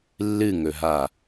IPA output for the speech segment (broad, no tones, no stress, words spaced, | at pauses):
lːɨŋɵɦa